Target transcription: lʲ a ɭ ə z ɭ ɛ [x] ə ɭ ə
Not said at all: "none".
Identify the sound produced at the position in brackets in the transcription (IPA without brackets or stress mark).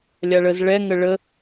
ŋ